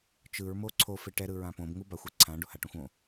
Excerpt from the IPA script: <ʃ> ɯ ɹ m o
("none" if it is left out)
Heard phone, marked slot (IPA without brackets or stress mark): t͡ʃ